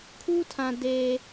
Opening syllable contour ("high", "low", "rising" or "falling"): high